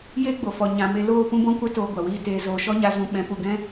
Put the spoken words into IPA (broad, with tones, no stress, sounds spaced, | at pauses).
j e˦ ɡ͡b o˨ f ɔ˨ ɲ ã˨ m e˧ l oː˦˨ p ũ˦ b ɔ̃˦ kʷ ɛ˦ t oː˧ ɡʷ a˨ w iː˧ t eː˨ z oː˨ ʃ ɔ˦ ɲ a˧ z ũ˧ ɓ ɛ̃˨˦ p u˨ ɡ ɛ̃˦